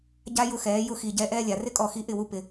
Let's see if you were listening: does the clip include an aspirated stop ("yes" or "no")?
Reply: no